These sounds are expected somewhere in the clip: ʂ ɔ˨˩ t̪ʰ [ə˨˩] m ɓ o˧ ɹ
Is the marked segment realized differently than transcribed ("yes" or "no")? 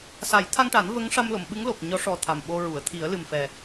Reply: yes